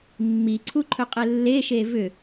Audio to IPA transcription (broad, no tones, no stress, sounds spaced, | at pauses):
mː i ǀʰ u ǃʰ ɵ qʼ e lː e ʃ e v ʏ